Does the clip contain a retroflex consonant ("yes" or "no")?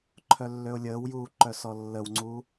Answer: no